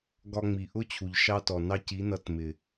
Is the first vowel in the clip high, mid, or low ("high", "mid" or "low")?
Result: low